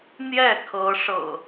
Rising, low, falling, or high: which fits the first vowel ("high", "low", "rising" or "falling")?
falling